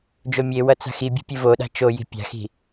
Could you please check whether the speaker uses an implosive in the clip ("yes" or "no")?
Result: yes